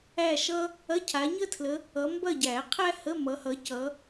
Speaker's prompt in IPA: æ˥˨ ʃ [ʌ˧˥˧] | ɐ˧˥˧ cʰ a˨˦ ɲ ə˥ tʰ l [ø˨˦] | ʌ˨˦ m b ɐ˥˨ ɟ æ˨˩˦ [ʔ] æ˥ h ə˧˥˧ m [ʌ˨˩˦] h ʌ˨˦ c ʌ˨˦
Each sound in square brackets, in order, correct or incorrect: incorrect, incorrect, incorrect, incorrect

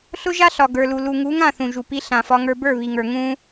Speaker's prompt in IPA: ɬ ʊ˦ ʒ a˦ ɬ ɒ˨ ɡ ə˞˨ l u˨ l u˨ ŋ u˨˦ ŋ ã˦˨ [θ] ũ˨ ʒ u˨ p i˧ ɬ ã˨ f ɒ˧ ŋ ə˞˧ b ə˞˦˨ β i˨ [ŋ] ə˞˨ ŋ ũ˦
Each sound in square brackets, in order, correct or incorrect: correct, correct

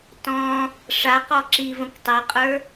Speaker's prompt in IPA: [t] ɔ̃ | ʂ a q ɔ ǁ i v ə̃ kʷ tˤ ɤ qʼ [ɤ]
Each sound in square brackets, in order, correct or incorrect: correct, incorrect

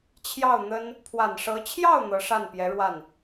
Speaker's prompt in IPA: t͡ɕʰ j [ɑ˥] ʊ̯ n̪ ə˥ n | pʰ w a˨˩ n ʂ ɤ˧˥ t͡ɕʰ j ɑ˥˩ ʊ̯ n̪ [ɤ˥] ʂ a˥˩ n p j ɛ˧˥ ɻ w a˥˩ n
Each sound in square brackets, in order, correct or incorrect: incorrect, incorrect

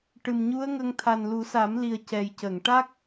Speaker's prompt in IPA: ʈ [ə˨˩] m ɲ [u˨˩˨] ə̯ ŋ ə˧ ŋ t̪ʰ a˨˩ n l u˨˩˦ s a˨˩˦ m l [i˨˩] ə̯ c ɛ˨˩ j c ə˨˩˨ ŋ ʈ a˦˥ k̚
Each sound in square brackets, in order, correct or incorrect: incorrect, incorrect, correct

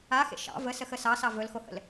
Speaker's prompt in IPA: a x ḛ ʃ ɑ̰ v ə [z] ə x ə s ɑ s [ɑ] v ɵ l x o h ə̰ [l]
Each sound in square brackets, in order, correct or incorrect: incorrect, correct, correct

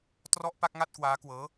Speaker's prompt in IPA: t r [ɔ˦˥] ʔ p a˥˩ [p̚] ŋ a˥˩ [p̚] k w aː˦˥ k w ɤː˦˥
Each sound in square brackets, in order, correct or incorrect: incorrect, incorrect, incorrect

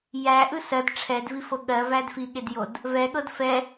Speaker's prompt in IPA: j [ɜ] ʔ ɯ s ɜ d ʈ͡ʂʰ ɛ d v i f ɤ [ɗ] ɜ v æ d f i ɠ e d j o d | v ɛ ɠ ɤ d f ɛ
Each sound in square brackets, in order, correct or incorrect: incorrect, incorrect

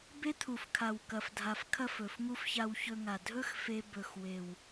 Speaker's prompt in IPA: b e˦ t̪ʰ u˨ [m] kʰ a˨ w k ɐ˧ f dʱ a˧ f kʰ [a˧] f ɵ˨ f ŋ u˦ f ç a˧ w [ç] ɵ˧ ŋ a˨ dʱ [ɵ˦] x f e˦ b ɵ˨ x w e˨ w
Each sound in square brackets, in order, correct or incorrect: incorrect, incorrect, correct, correct

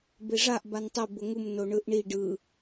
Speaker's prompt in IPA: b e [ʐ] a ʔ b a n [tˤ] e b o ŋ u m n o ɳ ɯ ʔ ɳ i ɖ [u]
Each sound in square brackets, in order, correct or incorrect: correct, correct, incorrect

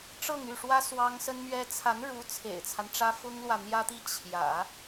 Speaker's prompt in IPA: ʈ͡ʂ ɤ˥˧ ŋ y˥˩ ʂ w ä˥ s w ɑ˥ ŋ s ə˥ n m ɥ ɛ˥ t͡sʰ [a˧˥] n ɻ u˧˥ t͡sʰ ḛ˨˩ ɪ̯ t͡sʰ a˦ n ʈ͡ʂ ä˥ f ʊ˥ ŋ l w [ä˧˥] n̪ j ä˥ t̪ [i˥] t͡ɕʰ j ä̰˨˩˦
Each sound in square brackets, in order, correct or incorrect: correct, incorrect, correct

